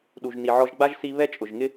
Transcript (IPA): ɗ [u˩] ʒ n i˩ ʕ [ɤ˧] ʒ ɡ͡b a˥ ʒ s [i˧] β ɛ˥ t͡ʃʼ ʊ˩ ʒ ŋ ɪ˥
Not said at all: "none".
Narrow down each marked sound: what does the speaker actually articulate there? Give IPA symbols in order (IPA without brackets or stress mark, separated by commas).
u˩, ɔ˧, i˧